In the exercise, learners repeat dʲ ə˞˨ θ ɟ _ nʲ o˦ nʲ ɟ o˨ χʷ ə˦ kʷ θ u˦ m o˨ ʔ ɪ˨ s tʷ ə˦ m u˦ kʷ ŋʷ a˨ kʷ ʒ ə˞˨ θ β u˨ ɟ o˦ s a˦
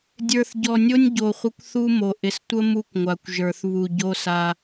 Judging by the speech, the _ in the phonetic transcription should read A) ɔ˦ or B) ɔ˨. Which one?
B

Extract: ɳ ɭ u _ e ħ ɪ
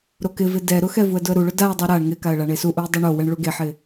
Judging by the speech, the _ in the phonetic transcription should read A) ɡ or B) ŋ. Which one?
A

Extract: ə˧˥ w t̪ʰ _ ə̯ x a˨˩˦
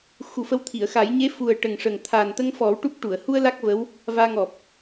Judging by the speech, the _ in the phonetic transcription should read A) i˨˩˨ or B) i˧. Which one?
A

